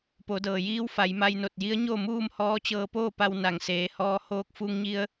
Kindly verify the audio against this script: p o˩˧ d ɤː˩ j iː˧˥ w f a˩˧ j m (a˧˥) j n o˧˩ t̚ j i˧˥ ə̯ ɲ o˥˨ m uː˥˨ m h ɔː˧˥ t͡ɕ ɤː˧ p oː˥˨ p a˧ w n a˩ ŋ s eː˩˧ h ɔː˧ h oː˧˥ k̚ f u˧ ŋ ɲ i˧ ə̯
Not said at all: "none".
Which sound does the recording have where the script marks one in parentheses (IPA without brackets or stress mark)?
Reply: a˧